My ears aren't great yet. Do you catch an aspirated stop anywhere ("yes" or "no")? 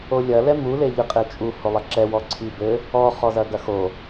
yes